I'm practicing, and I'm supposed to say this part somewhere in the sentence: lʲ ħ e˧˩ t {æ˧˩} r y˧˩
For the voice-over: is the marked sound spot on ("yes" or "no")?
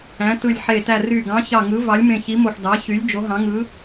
yes